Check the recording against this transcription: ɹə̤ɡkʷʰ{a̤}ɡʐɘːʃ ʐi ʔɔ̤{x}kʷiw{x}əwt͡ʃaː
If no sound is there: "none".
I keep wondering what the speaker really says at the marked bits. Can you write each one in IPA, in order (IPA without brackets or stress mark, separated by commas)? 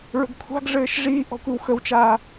a̤, none, x